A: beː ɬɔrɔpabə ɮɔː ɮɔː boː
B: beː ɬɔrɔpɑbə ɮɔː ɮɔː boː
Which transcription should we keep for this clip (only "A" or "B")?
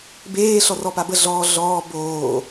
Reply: A